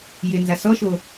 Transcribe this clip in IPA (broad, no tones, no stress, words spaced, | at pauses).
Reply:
jɪnza sɔʃo